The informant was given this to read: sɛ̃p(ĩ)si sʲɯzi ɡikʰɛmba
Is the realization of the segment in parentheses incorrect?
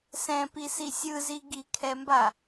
yes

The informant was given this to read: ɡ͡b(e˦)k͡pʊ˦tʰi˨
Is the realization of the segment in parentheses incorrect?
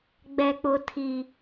yes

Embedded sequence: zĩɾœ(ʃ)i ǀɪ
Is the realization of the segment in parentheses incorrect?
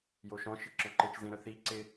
yes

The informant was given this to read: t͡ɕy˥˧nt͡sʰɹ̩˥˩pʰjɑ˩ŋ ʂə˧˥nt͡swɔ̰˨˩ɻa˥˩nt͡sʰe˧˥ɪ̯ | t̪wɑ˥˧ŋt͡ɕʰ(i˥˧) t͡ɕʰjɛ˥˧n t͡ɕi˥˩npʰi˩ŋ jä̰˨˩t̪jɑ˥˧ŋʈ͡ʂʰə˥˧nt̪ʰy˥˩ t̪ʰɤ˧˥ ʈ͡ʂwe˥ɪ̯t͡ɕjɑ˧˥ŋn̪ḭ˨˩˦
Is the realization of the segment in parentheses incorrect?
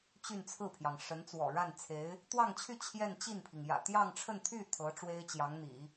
yes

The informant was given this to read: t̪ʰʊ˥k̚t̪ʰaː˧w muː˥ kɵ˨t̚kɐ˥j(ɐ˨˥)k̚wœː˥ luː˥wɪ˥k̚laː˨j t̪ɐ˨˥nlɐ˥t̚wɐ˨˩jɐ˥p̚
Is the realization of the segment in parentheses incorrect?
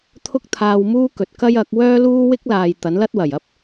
no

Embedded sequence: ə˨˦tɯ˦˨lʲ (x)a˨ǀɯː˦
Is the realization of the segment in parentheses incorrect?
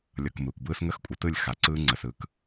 no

